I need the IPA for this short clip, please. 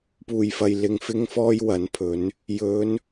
puː˨˩jfɐ˨j lɪ˨ŋ fɪ˥ŋfɔː˥jwɐ˨˥npʰɵ˨˥n | jɵ˨˧n

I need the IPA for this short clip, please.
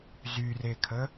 zyrekʰə

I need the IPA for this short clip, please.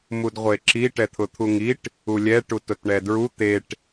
mudʁʷeǁi ʈɛt̪ʰʊt̪ʰuŋiʈ | ulʲɛ ʈutʊtɳɛdɹu t̪eʈ

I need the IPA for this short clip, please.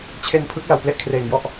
t͡ɕʰe˧npʰɯ˦˥k̚ la˨˩wple˥˩ʔkʰreː˨˩ŋjɔ˥˩ʔ

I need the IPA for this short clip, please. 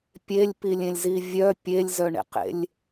pʲelʲpilʲẽlʲzi vʲœ pʲelʲzœɳḛqḛlʲ

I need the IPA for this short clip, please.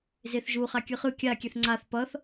zeθʒu χakʲɯχɯ kʲa kʲɛθŋ͡ǀaθ pʌθ

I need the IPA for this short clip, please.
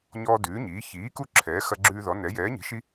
ɲɔː˦dʉː˨˥ɲiː˨˥ çiː˨˥ku˦ ǁʰɛː˨˥xɐ˦ɡ͡ǁʉː˦ðɔ˨˥ nɛ˨˥ jɛː˨˥ɲi̤˨˥ʃi˦

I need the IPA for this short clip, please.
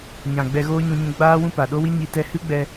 ɲã˨ ɡ͡bɛ˧ɣoː˦ ɲũ˧ɲũ˧ ɡ͡baː˦wũ˦pa˨ ɗo˦wi˦ɲi˧ tɛ˧hɨ˦ɡ͡bɛ˧

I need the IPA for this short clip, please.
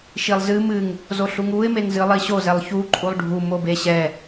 ʃilˠzɨ mɨŋ | zoɬuŋuɪ̯ meŋzɨlˠiɕo zɛlˠçu ǃʼulˠɖʱu mobeɕɛ

